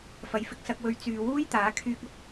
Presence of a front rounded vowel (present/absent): present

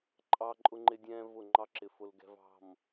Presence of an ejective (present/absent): present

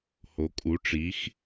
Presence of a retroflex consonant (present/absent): present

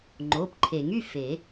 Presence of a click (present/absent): present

